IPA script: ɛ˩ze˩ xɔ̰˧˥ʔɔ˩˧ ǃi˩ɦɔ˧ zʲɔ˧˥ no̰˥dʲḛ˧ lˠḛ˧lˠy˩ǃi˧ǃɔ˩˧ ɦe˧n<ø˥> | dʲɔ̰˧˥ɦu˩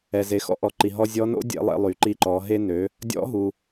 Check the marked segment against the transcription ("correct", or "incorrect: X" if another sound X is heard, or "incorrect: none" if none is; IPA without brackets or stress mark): incorrect: ø˩˧